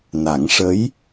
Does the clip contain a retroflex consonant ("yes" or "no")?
yes